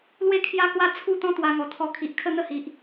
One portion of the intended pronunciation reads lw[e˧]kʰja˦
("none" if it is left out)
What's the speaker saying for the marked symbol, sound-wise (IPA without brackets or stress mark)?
e˥˧